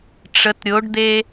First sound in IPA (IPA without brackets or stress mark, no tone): ʈ͡ʂ